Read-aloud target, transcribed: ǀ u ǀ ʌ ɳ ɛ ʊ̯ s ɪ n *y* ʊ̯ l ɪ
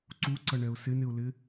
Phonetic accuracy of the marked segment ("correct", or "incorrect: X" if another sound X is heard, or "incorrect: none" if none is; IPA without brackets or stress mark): incorrect: ɪ